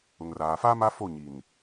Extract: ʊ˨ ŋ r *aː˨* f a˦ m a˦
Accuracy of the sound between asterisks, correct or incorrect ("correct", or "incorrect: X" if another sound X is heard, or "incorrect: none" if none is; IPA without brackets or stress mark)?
correct